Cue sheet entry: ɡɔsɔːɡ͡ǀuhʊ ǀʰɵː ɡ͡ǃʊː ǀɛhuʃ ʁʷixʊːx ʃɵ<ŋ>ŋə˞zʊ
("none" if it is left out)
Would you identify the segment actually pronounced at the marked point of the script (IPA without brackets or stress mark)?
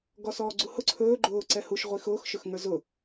x